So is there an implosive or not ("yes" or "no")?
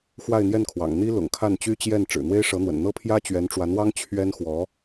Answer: no